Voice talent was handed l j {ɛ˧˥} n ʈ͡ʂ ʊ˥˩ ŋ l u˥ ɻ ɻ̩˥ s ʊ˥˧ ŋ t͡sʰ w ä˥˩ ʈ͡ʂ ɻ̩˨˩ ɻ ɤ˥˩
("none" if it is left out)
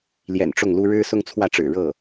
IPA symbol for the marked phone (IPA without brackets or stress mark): ɛ̰˨˩